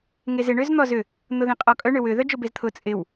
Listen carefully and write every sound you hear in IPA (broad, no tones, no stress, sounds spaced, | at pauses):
ŋ e z ɪ ɳ ø z n̪ ɔ z ʏ | n̪ ʊ ð ẽ qʼ ɔ kʼ œ ɳ ø w ʏ ð œ d͡ʒ ʊ b e z t̪ʰ ʊ t͡sʼ ɪ w